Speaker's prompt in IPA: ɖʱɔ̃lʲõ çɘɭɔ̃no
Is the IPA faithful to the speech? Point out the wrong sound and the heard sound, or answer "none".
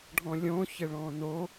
none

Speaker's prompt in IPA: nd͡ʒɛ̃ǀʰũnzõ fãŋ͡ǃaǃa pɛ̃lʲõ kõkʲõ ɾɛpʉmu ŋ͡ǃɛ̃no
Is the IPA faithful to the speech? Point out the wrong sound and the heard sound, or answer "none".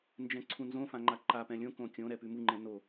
none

